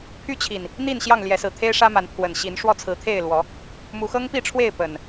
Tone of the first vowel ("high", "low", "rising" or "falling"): high